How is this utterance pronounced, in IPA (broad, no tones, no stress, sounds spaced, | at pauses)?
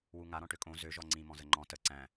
w u ŋ a ɾ ɔ̃ ʈ ø kʼ õ z ø ʒ ɔ ŋ͡ǀ ĩ m ɔ̃ z ə ŋ͡ǃ ɔ̃ t ə ǀ æ̃